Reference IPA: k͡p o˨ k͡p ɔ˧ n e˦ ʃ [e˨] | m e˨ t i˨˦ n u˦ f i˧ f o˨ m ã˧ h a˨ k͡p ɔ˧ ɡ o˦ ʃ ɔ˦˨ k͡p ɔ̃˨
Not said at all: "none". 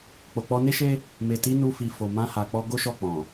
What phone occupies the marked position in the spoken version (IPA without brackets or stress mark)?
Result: e˦